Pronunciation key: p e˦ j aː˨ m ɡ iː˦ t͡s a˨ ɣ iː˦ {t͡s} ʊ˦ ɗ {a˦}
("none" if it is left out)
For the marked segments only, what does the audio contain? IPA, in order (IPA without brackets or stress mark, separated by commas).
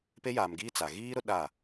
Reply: ɾ, a˦˨